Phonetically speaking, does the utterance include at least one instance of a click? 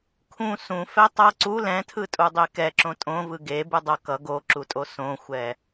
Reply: yes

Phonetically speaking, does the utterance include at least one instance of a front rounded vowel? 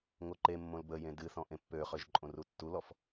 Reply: yes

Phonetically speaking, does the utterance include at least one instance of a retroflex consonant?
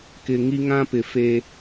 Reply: no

